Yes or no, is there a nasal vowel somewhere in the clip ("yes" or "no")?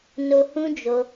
yes